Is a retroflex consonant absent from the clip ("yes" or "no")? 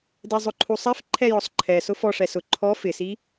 no